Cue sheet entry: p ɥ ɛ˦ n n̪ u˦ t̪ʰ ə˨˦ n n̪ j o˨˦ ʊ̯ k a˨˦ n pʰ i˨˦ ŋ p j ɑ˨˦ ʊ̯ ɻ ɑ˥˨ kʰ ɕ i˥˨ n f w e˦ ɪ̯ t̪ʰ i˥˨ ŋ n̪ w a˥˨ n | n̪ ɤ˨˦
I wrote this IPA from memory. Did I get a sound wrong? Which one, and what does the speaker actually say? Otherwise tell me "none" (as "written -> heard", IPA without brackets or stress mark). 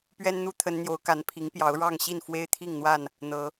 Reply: kʰ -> ŋ